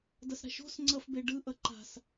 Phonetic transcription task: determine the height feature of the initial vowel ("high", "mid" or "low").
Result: mid